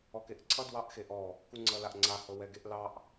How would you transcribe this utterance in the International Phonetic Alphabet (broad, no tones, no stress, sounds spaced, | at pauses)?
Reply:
ɔ k e ʔ ǀʰ ʌ d w ɑ ʔ x e ʔ ɔ | k u ŋ͡ǀ ʌ l a ʔ ŋ͡ǀ a h ɤ w ɛ ɡ e ʔ l ɑ ʔ